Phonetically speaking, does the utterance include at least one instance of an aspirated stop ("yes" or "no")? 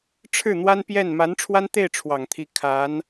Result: yes